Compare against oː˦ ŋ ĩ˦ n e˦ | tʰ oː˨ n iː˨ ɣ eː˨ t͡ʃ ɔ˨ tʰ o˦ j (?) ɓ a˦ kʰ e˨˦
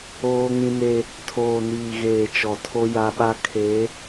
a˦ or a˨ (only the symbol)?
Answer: a˦